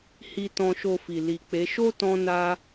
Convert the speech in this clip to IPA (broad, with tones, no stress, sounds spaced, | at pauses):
h i˧ t ɔ̃˧ ʃ o˧ f i˨ l i˨ k͡p e˨˦ ʃ o˦ t ɔ̃˦ n a˦